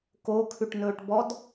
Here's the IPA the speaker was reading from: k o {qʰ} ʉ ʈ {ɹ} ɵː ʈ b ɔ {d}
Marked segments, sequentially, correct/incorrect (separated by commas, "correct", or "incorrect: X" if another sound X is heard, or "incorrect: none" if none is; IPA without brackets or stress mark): incorrect: kʰ, incorrect: n, correct